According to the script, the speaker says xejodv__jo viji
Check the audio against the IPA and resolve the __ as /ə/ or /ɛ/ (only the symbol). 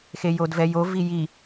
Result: ɛ